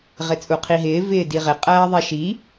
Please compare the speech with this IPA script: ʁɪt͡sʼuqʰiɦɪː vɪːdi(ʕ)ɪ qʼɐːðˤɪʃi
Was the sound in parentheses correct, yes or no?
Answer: no